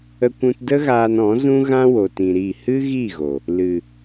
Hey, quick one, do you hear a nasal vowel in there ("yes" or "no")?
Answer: yes